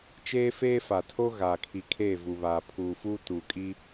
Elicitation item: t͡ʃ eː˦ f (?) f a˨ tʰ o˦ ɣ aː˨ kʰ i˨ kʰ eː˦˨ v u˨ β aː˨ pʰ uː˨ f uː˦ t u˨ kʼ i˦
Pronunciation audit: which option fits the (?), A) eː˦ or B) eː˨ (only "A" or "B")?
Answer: A